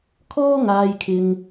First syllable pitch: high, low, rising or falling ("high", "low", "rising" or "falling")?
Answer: high